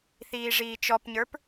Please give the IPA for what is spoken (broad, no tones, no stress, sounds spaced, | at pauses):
θ iː ʐ iː t͡ʃ ɔ p ɲ ə˞ p